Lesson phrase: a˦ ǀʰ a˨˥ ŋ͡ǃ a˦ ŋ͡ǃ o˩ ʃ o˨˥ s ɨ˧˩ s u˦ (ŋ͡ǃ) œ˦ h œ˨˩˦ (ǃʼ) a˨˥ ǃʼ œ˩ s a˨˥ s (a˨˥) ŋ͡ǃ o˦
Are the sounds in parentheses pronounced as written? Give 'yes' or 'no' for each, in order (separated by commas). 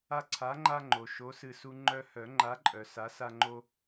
yes, no, no